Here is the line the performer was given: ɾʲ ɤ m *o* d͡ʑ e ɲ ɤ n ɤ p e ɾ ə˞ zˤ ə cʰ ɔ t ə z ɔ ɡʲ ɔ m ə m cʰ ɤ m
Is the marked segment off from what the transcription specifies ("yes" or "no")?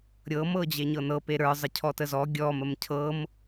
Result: yes